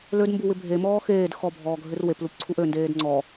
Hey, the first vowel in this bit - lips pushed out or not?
yes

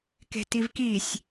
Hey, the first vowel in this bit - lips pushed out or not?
no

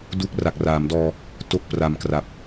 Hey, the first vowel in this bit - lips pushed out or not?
yes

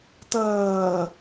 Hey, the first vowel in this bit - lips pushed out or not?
no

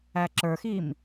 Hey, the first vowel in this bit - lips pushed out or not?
no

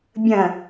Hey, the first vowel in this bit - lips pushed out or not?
no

